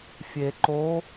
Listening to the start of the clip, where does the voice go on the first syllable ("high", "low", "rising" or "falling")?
low